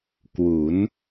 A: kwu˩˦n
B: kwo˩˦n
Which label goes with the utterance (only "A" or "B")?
A